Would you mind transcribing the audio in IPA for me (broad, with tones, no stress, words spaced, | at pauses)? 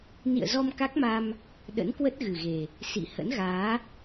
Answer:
nḭ˧˨ə̯zɔ˧m ka˦˥k̚ma˧m | ɗə̰˧˥nkwə˦˥t̚ɣɨ˨˩ɣe˨˩ | sḭ˧˨ hə̰˧˥nɣaː˨˦